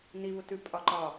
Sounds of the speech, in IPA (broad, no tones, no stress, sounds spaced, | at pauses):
n i β ʊ t ʉ pʼ ɒ ǃ ɒ